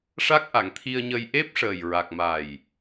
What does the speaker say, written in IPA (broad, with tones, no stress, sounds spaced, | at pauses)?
ʂ a˦˥ k̚ ʔ a˨˩˨ ŋ t̪ʰ i˧ ə̯ ɲ ə˧ j ʔ e˦˥ p̚ ʂ əː˨˩ j ɹ a˨˩ k̚ m a˨˩ j